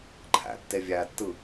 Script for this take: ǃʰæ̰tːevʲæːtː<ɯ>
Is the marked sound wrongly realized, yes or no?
no